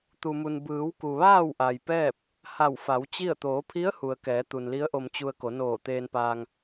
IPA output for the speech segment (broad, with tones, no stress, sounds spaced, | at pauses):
t̪ u˩ m u˩ n b ɯː˩˧ w k u˩ ʋ aː˥˨ w ʔ a˩ j p ɛː˥˨ p̚ | h a˧˩ w f a˩˧ w t͡ɕ i˥˨ ə̯ t̪ oː˩˧ pʰ i˧˥ ə̯ h u˩ ə̯ k ɛː˩˧ t̪ u˩ n l i˧˥ ə̯ ʔ o˧ m t͡ɕ u˧ ə̯ k o˩˧ n oː˧˩ t̪ eː˧ n p aː˧ ŋ